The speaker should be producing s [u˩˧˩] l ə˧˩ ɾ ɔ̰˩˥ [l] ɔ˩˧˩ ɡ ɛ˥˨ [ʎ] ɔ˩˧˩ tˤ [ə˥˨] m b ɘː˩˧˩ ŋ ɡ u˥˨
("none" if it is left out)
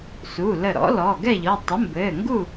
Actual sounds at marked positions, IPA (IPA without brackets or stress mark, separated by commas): u˩˧˩, l, ʎ, ə˩˥